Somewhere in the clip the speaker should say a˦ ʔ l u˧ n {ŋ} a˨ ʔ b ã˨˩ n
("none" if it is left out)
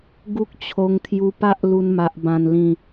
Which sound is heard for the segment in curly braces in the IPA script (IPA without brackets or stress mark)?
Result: m